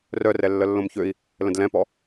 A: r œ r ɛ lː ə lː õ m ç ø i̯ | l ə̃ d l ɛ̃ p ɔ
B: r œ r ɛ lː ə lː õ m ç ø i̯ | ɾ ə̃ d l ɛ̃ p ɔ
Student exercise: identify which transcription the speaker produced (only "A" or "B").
A